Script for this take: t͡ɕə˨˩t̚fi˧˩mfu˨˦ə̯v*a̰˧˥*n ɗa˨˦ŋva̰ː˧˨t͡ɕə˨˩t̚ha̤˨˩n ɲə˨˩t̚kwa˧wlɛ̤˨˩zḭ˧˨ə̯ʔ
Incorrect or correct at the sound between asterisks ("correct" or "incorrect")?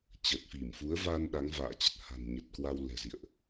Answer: incorrect